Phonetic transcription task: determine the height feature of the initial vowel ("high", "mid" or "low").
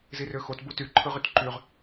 high